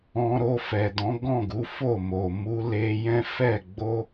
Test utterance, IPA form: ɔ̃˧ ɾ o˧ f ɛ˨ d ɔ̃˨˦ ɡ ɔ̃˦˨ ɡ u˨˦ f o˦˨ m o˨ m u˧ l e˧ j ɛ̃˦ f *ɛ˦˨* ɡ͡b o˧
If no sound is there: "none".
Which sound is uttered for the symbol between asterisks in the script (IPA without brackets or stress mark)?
ɛ˦˨